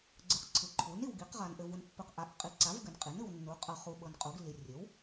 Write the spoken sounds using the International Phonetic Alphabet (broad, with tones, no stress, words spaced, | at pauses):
ɡ͡ǀɯ˨qǀʰɯ˩˥ǃʰu˩˥ni˨w ɡi˩˥qʁa˨n ʔɘ˨vu˨npːɯ˨q ʔa˩˥ʔqʼi˩˥ǀa˩˥v ɡɘ˩˥nqʼi˩˥nɯ˨w nːu˩˥qʼɤ˨χu˨ ɓɤ˨nqʼu˩˥ɡlːi˨ rʲɘ˩˥w